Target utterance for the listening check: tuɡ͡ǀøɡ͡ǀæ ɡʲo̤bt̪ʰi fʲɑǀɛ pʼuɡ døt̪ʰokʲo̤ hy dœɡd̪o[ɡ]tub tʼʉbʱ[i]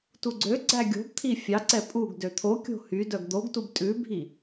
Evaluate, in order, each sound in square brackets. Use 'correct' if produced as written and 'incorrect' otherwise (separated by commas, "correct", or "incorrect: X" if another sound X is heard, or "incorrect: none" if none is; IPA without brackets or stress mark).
correct, correct